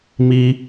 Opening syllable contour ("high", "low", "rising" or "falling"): high